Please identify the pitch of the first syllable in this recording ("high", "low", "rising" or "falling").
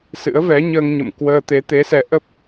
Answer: rising